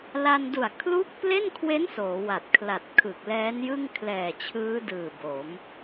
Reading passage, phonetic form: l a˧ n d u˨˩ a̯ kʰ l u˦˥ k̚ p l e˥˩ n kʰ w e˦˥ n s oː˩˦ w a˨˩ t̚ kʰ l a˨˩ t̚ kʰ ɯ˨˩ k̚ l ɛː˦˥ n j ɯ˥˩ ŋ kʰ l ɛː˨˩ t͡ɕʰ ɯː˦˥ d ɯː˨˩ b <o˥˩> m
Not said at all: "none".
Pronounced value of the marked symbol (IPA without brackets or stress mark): o˩˦